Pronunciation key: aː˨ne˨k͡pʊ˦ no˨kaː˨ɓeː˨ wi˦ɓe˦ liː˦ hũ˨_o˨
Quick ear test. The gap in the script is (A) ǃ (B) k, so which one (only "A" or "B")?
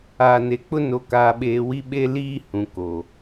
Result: B